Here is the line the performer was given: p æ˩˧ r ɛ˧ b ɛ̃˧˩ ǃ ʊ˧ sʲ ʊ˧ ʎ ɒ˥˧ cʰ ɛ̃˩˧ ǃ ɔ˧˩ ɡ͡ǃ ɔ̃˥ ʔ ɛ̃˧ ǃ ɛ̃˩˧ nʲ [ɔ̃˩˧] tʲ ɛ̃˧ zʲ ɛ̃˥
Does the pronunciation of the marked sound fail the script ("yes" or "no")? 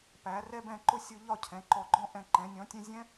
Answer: no